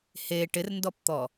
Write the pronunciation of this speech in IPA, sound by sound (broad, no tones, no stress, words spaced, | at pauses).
he ʈɪrndɔpt̪ɔ